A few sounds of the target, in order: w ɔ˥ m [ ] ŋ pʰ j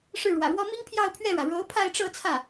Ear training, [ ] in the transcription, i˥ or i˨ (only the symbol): i˥